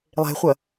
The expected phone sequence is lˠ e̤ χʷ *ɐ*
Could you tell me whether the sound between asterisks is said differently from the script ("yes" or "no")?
no